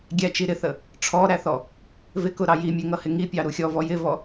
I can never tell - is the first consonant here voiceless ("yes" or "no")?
no